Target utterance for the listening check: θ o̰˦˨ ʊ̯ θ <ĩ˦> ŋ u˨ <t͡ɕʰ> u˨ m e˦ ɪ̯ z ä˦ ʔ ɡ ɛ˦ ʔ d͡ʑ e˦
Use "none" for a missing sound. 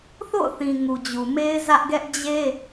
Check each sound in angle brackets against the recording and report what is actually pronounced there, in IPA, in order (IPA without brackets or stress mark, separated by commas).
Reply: ĩ˨, d͡ʑ